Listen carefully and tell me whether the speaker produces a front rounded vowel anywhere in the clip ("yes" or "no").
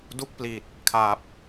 no